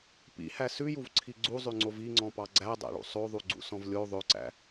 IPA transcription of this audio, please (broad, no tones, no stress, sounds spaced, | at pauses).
p ḭ h æ s ʉ j u v ǀʰ i ɡ͡ǀ u zˤ ʉ ŋ͡ǀ o v i ŋ͡ǀ ɔ̃ p ɑ ɡ͡ǀ æ dˤ æ̰ ɭ ṵ sˤ o ðˤ u ɡ͡ǀ ṵ s ɔ̃ v lʲ o ðˤ ø ǀ æ̰